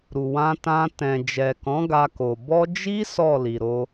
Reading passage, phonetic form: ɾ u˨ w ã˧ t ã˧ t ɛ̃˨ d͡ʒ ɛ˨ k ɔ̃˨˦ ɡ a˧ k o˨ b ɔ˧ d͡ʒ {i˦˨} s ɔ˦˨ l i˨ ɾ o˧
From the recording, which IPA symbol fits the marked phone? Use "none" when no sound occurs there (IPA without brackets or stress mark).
i˦